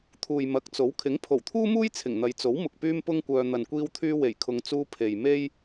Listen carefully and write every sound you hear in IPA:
t̪ʰuː˨jmɐ˨˥k̚t͡so˨˥w kʰɪ˨˥ŋpʰo˨˩wt̪ʰuː˥muː˥j t͡sʰɪ˨˩ŋn̪ɐ˨˧j t͡so˨˥wmʊ˨k̚ pyː˥mpʊ˥ŋkʷœː˧ n̪ɐ˨nkʷiː˧wt̪ʰyː˧ we˨˩jkʰʊ˨ŋt͡suː˧ pʰe˨jme˥j

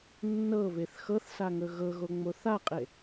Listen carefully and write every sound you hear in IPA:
nːɤβeθ xɤθsaŋɵ ɣɤɣoŋ͡mo θaqʼe

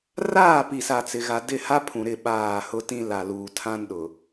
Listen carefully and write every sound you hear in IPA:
raː˦˨pi˨sa˨ t͡sɪ˨ɣa˨dɪ˦˨ha˦ pʰũ˨ɾɪ˦˨ ɓaː˦˨ hʊ˦tĩ˦ la˨luː˨ tʰã˦nɗʊ˨

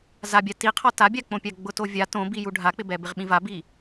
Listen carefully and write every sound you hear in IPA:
zabʲa tiqʰɔ tabʲak͡põ pʲaɡ͡bʊtovʲa tõbi juɖʱak͡pɪbɛ bɪʁɓĩvabi

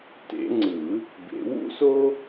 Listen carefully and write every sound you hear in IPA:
tḛ˨˩˦ŋ͡ǀɯ˨˩˦ | bḛ˨˩˦wṵ˥so˥

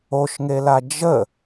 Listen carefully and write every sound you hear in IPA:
oʃŋela d͡ʒə

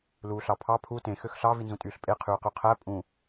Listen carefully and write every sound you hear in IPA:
luːɬɑpʰɑ pʰu tẽ xøxɬɑ vinzũtʼyːɬpʼe qʰyːqyqʰæ pʼũ

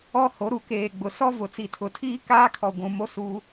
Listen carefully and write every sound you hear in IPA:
ɔ˦ ho˨˦ɾu˨keː˨ ɡ͡bʊ˨ sɔ˦vʊ˨ t͡si˨tʰʊ˨tʰiː˦ kaː˦kʰɔ˨ ɡʷũ˨mo˦ suː˦

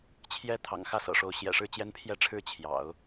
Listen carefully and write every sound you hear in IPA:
t͡ɕʰjɛ˧˥ t̪ʰɑ̰˨˩ŋxä˥˩sɤ̰˨˩ʂo˧˥ʊ̯ ɕjɛ̰˨˩ʂɻ̩˥˩t͡ɕjɛ˥n pʰjɛ˥˧ʈ͡ʂʰɻ̩˥˩ t͡ɕʰjɑ̰˨˩˦ʊ̯

